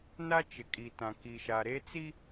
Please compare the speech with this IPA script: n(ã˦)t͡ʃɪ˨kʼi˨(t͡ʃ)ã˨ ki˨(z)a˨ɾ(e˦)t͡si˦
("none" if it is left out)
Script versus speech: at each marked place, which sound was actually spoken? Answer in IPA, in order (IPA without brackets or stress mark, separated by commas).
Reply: a˦, t, ʃ, e˦